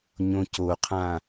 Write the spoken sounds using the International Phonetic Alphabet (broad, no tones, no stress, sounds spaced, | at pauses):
ɲ õ c o qʰ ã